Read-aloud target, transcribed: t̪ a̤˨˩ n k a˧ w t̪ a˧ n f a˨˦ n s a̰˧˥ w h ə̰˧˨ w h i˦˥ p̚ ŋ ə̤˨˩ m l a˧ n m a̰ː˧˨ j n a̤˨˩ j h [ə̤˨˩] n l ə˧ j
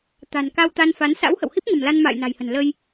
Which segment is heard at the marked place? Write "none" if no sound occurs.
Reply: ə̤˨˩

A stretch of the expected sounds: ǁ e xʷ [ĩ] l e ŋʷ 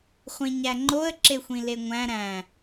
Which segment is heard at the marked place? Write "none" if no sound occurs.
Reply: ĩ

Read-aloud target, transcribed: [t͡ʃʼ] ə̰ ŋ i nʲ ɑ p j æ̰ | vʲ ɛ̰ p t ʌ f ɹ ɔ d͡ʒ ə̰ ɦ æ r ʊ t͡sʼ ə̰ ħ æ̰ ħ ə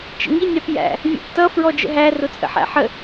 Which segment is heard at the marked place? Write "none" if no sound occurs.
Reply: t͡ʃ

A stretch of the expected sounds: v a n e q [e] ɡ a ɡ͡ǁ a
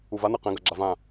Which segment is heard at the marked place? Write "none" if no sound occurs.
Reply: ẽ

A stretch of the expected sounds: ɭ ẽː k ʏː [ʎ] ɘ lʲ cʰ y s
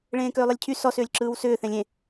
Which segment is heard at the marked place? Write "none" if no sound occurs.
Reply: lˠ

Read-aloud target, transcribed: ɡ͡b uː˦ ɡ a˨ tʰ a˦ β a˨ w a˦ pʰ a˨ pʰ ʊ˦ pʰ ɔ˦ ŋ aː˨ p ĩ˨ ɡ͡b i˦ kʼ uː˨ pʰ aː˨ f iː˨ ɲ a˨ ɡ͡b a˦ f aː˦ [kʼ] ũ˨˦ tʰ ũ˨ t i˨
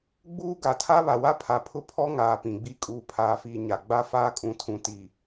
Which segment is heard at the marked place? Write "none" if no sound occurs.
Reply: kʼ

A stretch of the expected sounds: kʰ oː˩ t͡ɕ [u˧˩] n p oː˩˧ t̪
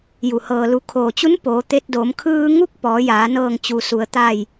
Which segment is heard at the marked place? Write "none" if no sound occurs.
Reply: u˧˥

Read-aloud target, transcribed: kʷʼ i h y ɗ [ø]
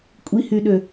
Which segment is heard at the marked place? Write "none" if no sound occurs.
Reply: ø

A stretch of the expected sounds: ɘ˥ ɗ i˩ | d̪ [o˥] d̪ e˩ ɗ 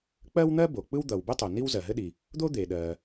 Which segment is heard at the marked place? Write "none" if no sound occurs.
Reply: o˥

